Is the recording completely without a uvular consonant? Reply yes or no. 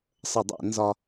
yes